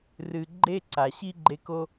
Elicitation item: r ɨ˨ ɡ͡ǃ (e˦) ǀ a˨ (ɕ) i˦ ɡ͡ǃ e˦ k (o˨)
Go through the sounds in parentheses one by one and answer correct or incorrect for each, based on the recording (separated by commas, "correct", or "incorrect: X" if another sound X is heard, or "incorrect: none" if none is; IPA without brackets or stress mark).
correct, correct, incorrect: o˦